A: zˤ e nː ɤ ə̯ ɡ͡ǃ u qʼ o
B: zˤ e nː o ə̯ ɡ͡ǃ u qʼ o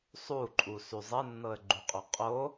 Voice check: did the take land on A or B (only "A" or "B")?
A